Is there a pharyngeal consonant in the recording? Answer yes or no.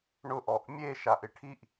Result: no